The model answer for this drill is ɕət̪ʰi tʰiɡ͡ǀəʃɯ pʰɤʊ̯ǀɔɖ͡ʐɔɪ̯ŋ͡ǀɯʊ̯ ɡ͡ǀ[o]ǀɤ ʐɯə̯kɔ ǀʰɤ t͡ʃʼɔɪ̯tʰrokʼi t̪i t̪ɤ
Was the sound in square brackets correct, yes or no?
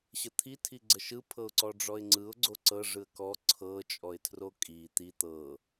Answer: yes